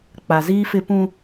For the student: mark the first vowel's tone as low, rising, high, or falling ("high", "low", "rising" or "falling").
low